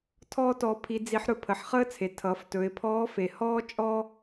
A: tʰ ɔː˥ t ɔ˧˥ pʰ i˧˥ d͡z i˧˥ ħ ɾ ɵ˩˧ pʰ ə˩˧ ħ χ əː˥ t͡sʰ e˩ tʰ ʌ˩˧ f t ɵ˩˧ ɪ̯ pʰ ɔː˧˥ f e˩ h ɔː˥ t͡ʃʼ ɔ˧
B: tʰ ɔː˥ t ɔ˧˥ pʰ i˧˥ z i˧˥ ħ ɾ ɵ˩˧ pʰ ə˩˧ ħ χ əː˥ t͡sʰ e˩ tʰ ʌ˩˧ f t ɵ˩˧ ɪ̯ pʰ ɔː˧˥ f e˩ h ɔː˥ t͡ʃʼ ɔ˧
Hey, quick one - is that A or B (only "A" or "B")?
A